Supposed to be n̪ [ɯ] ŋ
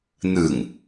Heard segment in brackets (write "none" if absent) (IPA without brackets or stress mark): ɯ